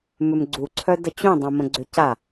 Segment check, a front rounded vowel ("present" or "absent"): present